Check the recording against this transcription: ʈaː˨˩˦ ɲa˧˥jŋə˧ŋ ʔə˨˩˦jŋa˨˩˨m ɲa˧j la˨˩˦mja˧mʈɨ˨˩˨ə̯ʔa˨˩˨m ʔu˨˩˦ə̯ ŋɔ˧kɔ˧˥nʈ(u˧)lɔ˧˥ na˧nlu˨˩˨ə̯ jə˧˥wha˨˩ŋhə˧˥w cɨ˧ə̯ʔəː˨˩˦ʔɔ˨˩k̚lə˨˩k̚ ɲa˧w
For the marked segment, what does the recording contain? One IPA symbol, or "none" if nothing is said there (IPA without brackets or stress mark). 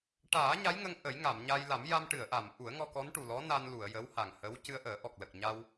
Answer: u˨˩